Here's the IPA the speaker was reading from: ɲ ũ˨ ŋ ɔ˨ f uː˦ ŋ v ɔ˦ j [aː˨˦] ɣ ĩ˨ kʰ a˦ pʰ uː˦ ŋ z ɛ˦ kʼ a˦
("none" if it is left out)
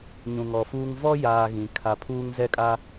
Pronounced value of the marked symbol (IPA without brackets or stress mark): aː˦